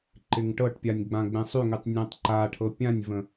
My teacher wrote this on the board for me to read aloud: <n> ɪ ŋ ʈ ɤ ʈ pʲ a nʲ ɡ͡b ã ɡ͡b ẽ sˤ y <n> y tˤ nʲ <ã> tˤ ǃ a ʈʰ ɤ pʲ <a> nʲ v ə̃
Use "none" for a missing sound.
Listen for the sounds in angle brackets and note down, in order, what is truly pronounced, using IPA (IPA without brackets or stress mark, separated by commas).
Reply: ǃ, ŋ, ã, ã